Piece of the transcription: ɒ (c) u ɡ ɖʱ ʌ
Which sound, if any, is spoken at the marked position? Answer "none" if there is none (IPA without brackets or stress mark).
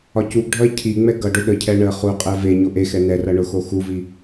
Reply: c